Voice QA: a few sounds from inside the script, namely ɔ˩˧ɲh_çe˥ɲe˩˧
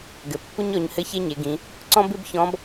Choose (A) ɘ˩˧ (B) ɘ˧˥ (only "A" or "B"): B